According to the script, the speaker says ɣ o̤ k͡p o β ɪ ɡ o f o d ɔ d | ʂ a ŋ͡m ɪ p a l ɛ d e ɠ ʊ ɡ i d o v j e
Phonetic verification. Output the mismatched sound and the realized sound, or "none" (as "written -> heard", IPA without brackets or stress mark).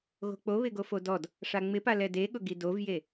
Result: none